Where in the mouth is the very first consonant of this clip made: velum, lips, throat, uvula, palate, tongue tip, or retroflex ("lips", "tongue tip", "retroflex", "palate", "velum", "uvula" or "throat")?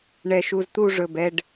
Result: retroflex